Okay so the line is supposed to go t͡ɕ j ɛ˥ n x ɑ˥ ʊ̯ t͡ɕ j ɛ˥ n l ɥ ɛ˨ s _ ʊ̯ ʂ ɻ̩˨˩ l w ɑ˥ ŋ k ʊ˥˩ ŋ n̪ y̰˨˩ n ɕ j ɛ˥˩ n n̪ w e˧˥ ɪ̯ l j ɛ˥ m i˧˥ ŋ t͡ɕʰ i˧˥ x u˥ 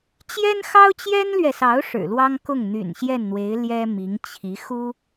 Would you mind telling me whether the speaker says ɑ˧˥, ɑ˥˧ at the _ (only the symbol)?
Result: ɑ˧˥